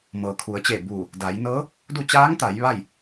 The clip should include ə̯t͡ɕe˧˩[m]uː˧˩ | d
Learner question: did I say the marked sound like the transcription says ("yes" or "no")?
no